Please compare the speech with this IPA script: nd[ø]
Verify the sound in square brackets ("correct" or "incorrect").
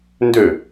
correct